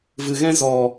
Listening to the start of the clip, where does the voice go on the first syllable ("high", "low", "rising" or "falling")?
low